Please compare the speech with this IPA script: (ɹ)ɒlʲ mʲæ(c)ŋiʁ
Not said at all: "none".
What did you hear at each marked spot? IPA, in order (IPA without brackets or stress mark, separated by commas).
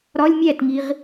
ɾ, t